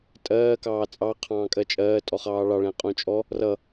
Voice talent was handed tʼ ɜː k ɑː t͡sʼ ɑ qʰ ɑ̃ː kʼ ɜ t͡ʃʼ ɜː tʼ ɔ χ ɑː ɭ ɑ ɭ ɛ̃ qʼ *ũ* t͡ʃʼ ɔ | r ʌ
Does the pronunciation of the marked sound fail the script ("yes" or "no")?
no